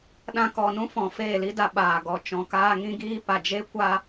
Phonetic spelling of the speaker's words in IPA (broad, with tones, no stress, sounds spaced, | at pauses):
ɗ ã˧ k ɔ˨ n ũ˦ f ɔ̃˨ f eː˦˨ l i˦ d a˧ ɓ aː˨ ɡ ɔ˧ t͡ʃ ɔ̃˨ k aː˦ ŋ ĩ˦ ɡ iː˦ p a˨ d͡ʒ e˦ kʷ a˦